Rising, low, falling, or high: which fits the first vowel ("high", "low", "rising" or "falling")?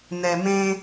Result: low